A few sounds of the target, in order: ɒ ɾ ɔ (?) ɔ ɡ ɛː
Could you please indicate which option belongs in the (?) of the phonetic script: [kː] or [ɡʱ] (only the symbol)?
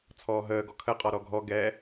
ɡʱ